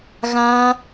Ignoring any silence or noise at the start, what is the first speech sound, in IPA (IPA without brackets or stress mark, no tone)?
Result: ɣ